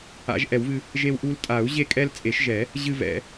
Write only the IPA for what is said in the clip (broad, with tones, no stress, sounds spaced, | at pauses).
a̰˨˩˦ ʒ ʔ ɛ˨˩˦ w v ɨ˦ | ʒ e˦ w ʔ u˦ l tʼ a˨˩˦ u̯ ʑ e˦ kʼ ɛ˦ l t͡sʼ e˨˩˦ ʃ ʒ ɛ˨˩˦ | ʑ ɨ˦ v ɛ̰˨˩˦